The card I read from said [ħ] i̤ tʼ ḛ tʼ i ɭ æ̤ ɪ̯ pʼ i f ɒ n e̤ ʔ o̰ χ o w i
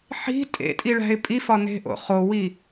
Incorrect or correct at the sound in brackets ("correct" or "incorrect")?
correct